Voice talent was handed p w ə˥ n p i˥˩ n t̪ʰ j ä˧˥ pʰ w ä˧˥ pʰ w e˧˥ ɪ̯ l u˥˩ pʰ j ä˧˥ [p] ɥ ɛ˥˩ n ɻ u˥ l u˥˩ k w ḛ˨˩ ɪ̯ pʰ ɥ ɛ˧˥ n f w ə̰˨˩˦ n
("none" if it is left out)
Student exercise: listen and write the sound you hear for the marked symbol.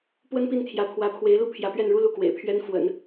p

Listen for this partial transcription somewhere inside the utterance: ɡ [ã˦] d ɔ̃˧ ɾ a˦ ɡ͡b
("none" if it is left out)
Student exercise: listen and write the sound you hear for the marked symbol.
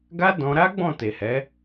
a˦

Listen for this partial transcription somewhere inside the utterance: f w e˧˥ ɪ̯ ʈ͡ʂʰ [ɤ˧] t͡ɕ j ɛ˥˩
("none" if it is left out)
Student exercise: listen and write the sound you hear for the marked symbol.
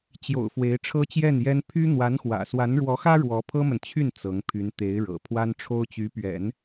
ɤ˥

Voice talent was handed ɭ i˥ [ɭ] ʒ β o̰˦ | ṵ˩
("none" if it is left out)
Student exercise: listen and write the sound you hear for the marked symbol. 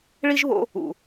none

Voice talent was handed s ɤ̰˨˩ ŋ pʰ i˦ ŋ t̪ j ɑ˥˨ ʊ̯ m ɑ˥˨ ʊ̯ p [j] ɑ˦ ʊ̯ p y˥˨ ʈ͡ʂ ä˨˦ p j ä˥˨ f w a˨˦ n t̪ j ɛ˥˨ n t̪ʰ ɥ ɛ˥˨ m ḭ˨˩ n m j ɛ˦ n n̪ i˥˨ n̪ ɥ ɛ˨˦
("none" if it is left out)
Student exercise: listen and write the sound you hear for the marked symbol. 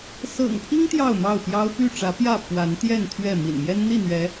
j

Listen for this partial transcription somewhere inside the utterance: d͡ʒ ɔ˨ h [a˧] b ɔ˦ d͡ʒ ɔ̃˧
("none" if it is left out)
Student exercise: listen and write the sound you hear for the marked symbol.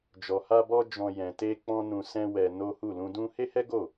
a˧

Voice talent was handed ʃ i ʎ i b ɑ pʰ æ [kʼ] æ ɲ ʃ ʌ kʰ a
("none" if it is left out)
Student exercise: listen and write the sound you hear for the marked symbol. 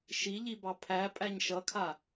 pʼ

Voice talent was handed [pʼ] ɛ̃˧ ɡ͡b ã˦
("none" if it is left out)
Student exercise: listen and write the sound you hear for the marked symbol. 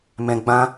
m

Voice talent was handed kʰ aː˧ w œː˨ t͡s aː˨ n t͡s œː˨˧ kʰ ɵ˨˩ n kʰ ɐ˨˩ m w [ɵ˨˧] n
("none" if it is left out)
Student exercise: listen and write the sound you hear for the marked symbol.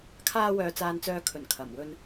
ɵ˧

